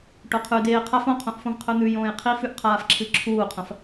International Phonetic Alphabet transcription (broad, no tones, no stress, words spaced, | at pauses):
ʈoqʰʉ deːqʰaf õqʰõʔfõv qʰɵn̪ʉjõːj qʰifʉʔqʰaːfǁʰɨ ǁʰuːqʰɐ̃f